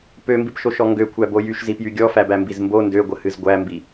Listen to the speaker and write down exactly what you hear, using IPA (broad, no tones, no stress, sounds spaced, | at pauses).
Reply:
p ø m b i p ʃ o ʃ ɔ ŋ ɡ ø kʷʰ æ b o j y ʃ z i p j y ɡʲ ɔ f æ b æ m b i z m b o n d ø ɡʷ ə h ɨ z ɡʷ æ m b i